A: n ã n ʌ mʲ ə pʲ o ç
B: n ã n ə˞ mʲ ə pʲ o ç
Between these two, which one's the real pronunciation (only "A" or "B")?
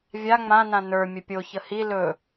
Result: B